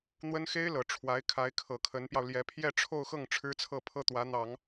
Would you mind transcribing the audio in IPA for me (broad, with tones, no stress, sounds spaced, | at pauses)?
n̪ w ə˥ n x e˥ ɪ̯ l ɤ˨˩ ʈ͡ʂʰ w a˧˥ ɪ̯ kʰ a˧˥ ɪ̯ kʰ ɤ˨˩ kʰ ə˧˥ n p j ɑ˧ ʊ̯ l j ɛ˧˥ pʰ j ɛ˥˧ ʈ͡ʂʰ o˥˧ ʊ̯ x ɤ˥˩ ŋ ʈ͡ʂʰ ɻ̩˥ t͡sʰ ɤ˥˩ pʰ ɤ˥ t̪ w ä˧˥ n̪ ɑ˨˩˦ ŋ